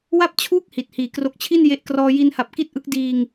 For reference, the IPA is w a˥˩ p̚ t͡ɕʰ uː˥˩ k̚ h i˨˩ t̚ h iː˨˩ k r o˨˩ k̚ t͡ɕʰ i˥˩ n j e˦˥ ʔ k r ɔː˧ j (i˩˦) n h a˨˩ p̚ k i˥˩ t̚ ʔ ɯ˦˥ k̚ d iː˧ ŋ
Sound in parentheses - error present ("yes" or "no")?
yes